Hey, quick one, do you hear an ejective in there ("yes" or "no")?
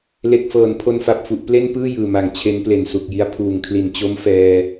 no